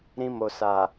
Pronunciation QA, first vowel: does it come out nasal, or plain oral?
nasal